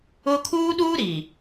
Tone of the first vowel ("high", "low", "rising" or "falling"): high